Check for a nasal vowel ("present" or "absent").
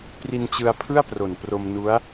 absent